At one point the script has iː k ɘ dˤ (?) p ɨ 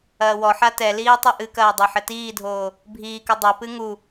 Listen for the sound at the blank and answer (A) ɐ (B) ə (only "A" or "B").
A